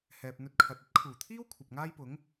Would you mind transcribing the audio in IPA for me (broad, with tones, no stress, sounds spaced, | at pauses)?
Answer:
h ɛː˨ p̚ n̪ ɵ˧ t̚ kʰ ɐ˨ t̚ ɐ˥ t̚ kʰ uː˨˩ t̪ʰ iː˥ w kʷʰ ɐ˨ p̚ ŋ aː˥ j p ʊ˨˥ ŋ